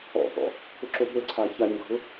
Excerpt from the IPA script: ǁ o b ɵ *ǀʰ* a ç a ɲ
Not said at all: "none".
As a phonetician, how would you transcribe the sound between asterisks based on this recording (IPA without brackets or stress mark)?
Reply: ǀʰ